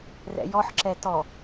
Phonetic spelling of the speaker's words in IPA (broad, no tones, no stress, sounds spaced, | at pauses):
r ɛ̰ j ɔ ħ ǁ ɛ t ɔ